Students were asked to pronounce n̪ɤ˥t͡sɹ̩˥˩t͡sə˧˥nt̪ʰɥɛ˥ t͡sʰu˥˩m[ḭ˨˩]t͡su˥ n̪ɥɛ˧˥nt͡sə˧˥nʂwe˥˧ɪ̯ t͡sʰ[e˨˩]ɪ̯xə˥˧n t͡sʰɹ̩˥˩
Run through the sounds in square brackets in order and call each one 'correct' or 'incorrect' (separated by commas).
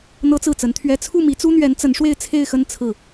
incorrect, incorrect